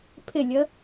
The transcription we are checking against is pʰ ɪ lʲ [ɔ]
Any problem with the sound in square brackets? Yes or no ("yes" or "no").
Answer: yes